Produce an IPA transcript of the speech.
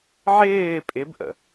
ʕ ɪː pʼ ɪ b ʔ ə̰

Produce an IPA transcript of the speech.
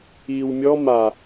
iː w mʲ ɔ m a

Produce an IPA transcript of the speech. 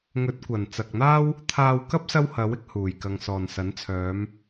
ŋ ɵ˨˥ t̚ kʷ ɐ˨˩ n t͡s ɐ˨ k̚ n̪ aː˥ w | t̪ʰ aː˧ w k ɐ˥ p̚ s ɐ˥ w h ɐ˨˥ w ɪ˥ k̚ h uː˨˩ j k ɐ˨ ŋ s ɔː˨˩ n s ɐ˨˥ n t͡sʰ œː˨˧ m

